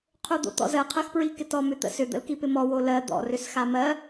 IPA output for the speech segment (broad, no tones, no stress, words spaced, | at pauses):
qʰod̪o̰t̪ɔ̰zɜ qʰɜxpɹikɪtɔ mʏt̪ə̰sʏ d̪ə̰lkipɪmɔ wolɜ d̪ɔ̰ rʏsxamɜ